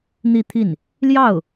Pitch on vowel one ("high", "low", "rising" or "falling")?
falling